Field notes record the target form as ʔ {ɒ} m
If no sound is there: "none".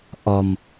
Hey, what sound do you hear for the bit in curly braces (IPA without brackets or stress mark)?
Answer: ɒ